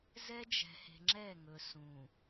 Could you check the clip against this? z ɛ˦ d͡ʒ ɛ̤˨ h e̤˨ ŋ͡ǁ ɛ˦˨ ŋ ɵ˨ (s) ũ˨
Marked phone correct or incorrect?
correct